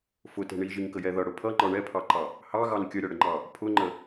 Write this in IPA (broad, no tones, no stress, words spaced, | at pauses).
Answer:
fʊtɛ̤ ɳiʒiŋkəjɛ ðʌɽʊ pʰʌŋ͡ǃɒ ɳɛpʰɑǃɑ | hɑɣɑn kʲəɾʲɒɽəŋ͡ǃɑ | pʰʊŋ͡ǃə